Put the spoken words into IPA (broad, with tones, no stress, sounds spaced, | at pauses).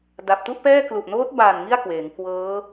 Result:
d a˨˩ p̚ t u˥˩ ʔ p ɛː˥˩ k l u˨˩ ʔ n oː˦˥ t̚ b a˨˩ n ŋ i˥˩ a̯ k w eː˩˦ ŋ k w ɤː˦˥